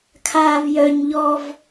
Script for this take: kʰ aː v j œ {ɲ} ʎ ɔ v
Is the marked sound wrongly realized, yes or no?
no